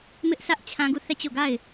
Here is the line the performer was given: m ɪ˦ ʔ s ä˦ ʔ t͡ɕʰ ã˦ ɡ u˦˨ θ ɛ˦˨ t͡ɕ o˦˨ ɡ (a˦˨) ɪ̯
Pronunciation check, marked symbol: correct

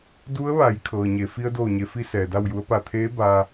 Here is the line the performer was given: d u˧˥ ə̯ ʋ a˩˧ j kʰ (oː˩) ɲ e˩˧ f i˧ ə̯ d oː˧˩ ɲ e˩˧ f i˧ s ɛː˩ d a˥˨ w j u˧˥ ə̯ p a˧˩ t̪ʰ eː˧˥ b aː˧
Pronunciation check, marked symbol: incorrect: ɤː˩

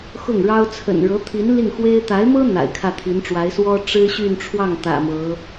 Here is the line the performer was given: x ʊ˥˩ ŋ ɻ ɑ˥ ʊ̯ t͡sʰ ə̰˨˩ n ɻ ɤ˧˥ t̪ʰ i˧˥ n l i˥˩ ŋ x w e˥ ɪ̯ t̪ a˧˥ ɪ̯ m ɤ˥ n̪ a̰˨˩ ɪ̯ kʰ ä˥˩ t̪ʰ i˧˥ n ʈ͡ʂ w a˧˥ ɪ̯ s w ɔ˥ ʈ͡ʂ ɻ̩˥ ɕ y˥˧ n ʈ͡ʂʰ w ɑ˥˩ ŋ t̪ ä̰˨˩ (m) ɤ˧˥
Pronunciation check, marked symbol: correct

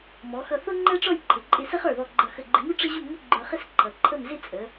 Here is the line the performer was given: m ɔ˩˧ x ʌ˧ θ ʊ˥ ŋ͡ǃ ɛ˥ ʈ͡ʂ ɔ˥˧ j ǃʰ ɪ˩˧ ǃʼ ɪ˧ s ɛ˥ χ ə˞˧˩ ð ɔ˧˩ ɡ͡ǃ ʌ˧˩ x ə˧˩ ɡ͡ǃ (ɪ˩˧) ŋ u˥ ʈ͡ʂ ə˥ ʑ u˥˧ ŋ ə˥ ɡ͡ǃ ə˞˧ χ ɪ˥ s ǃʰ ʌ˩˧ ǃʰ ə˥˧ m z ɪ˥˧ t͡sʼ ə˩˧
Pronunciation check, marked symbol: incorrect: ɪ˧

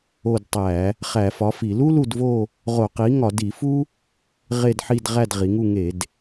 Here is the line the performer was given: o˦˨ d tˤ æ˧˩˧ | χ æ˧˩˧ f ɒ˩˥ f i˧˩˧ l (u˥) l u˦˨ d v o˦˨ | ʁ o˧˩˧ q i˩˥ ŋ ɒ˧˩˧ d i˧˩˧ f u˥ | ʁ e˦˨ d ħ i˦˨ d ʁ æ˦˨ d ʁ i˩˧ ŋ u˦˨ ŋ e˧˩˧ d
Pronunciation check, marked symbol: correct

